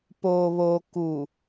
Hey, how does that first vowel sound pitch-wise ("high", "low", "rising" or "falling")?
low